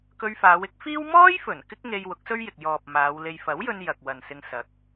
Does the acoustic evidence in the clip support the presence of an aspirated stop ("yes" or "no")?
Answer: no